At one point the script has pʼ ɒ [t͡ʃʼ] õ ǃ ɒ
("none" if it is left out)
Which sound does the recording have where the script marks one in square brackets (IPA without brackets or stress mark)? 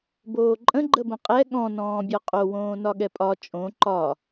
t͡ʃʼ